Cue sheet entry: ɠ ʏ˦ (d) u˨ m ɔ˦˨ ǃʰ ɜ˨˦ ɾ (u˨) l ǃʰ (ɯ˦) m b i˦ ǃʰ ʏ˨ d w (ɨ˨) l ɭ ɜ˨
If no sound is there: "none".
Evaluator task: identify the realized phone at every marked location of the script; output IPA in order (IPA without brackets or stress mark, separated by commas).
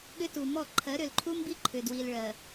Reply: t, ʏ˨, u˦, i˨